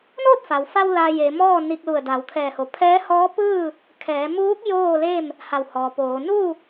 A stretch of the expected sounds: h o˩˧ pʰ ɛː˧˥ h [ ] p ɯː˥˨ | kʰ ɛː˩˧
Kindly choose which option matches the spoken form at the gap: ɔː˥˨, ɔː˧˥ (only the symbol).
ɔː˧˥